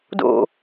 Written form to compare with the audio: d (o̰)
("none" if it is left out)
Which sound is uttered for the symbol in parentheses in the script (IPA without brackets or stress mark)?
o̰